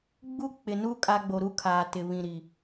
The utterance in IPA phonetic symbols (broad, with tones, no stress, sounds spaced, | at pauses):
ɡ͡b u˦ k͡p ɪ˨ n u˦ kʼ a˦ ɡ͡b o˨ ɾ u˦ kʰ aː˨ t ɪ˨ β ĩ˨ ɾ i˨